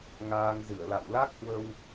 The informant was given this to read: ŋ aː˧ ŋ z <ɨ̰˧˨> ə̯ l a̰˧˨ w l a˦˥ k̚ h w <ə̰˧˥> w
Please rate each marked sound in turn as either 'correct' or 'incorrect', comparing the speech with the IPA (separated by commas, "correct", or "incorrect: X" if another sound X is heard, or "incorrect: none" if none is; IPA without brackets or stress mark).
incorrect: ɨ˧˩, incorrect: ə˧